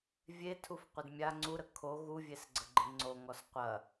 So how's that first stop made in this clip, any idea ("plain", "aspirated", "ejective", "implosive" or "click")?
aspirated